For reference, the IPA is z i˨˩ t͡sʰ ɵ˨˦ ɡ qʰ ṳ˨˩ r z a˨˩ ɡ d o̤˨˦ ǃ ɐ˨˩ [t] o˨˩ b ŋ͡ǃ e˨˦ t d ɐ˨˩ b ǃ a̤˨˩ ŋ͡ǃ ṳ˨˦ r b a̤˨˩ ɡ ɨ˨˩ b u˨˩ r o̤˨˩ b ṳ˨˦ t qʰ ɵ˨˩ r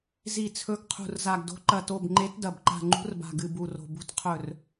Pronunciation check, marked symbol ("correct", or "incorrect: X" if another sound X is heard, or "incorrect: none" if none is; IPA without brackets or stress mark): correct